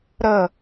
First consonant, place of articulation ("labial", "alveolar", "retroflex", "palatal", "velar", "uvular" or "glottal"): alveolar